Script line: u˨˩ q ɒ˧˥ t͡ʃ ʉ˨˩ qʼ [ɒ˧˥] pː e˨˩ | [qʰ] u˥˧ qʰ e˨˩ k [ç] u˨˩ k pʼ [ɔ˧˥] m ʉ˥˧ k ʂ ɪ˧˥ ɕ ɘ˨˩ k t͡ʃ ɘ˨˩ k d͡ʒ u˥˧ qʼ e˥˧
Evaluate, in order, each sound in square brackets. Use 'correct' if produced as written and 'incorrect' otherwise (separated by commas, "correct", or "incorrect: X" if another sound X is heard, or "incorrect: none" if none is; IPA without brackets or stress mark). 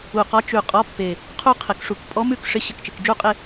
correct, correct, incorrect: ʂ, correct